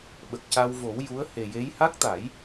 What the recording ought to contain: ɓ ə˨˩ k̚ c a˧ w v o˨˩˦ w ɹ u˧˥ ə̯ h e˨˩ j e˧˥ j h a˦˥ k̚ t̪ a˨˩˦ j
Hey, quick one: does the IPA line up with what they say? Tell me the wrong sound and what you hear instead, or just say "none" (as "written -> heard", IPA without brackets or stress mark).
ɹ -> j